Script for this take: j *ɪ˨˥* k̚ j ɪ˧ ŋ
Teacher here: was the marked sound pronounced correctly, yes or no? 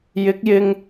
yes